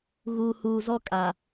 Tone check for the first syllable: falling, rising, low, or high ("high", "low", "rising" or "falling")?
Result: low